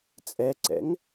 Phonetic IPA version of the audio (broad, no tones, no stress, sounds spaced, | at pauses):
t͡sʼ ɛ ǀ ɛ̰ ŋ